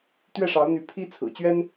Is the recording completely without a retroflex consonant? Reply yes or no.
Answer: no